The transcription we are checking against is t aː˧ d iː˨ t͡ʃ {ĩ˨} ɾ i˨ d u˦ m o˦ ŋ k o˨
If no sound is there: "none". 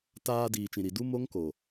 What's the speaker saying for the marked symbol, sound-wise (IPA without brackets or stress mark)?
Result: ĩ˨